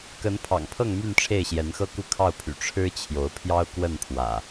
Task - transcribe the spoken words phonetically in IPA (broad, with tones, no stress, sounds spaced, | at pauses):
k ə˨˦ n pʰ ɑ̰˨˩ ŋ pʰ ɤ˥˨ ŋ m y˥˨ n ʈ͡ʂʰ e˥˨ ɪ̯ ɕ j ɛ˨˦ n x ɤ˦ k u˥˨ kʰ ɑ˥˨ ʊ̯ pʰ y̰˨˩ ʈ͡ʂʰ ɻ̩˦ t͡ɕʰ j o˨˦ ʊ̯ pʰ j ɑ˦ ʊ̯ k w ə˥˨ n pʰ w ä̰˨˩